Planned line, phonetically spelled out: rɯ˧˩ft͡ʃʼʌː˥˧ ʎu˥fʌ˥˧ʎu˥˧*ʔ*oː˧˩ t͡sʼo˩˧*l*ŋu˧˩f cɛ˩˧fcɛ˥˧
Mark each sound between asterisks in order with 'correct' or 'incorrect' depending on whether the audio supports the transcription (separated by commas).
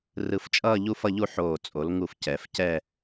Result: incorrect, correct